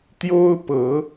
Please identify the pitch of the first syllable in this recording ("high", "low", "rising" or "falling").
high